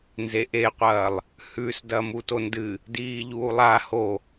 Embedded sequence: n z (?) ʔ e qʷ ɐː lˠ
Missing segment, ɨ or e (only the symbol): e